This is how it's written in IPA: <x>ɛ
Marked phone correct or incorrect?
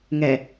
incorrect